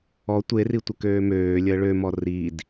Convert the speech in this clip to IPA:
ɔ tʷ e r i tʷ ə k øː m øː lʲ əː ɭ ø m ɔ r i d

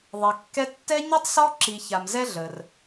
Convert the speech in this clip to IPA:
ðˤ ɛ˧ kː ɛ˥ tː ɛ˥ ɲ ʉ˥ tˤ s ɔ˥ ǁ i˧ ç a˧ m z ɛ˥ ɮ ə˧ r

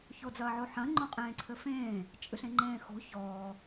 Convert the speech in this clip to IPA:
ç o d͡z ɐː ʕ o ħ ɐ̃ ŋ͡ǃ õ qʼ ẽː ǀʰ ɘ f ẽː | t͡ʃʼ ɨ ɬ ẽ ŋ͡ǃ ẽː x o̤ ç ɔː

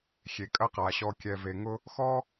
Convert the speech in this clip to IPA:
xʲ e˨ kʼ ɐ˦ q a˨ ɕ ɔ˨ kʲ ɛ˨ v e˨ ŋ ʊ˦ | x ɔ˦

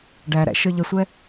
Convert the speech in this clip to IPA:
ɖ æ ɾ æ̰ ʃ ə˞ ʎ ə sʷ ɛ

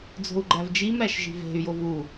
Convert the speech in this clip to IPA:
d͡z o̤ u̯ ɡ͡ǃ æ v d͡ʒ i m ɾ æ ʃ ʒ i̤ v e̤ y̯ j o v u

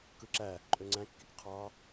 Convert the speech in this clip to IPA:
k ɯ ǁ æ | ǃʼ ø ŋ͡ǀ æ̃ kː i k qʰ ɑ

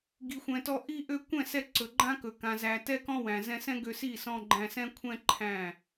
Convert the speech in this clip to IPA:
ɡ i˨ xʷ ɛ̃˨ t ɔ˧ ʔ i˧ ʔ ø˧ kʷ ɛ̃˦˨ s ɛ˧ ǀ ɵ˨ ɡ͡ǃ ã˦ k ɵ˨ k ã˨ z æ˨ t ɛ˦ k ɔ̃˦ w æ̃˨ z ɛ̃˧ s ɛ̃˦ ɡ ø˧ s i˦˨ s ɔ̃˧ ɡ͡ǃ æ̃˧ s ɛ̃˦ kʷʰ ɛ̃˦ ǃʰ æ̃˦˨

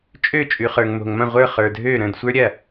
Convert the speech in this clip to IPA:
t͡ʃʼ ø˥˩ t͡ʃʼ ʉ˩ χ ə˞˩ ŋ m o̤˩ ŋ m ɐ̃˥˩ ʁʷ ə˞˥˩ χ ə˞˩ dʱ øː˥˩ ɾ ə̃ː˥˩ d sʷ ə˞˥ ɾʲ ɐ˥˩

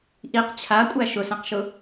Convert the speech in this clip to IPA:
ʔ i q t͡ɕʰ a kʷʼ æ ʃ ʊ s ɛ̃ q ʃ ʊ

